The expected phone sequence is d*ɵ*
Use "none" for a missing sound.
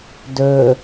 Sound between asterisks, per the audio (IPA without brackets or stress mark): ɵ